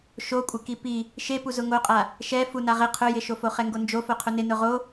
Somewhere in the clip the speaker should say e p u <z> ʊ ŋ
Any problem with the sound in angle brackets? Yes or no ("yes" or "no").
no